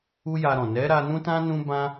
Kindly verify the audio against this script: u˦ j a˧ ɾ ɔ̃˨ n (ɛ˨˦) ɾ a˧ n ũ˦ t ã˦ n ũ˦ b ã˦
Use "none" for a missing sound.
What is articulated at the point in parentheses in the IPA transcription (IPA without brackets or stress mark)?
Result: ɛ˨˦